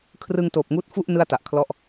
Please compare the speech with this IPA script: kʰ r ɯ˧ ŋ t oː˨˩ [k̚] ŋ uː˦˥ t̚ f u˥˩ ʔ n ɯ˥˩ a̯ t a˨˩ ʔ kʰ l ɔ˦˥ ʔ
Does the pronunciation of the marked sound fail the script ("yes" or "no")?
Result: yes